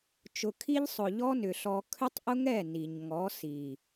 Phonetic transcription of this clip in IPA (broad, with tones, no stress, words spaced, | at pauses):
t͡ʃʊ˧kʰi˦ʎ sˤʊ˨ʎɔ˦ nʏ˨ɬɔ˧ kʰʏ˦tˤʔʊ˦ŋɛ˦˨ ni˨ɲŋɔ˨˦ si˨